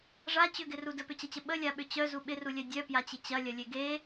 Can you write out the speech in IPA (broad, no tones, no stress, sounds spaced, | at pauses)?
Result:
ʐ a t͡ɕ ʏ ɡ ɪ r u d ə p ʏ t͡ɕ ɐ t͡ɕ ə ɓ ə lʲ a ɓ ʏ t͡ɕ œ z u ɓ ɪ r u lʲ œ dʲ œ p j a t͡ɕ ɪ t͡ɕ ɐ lʲ ɐ lʲ e ɡ e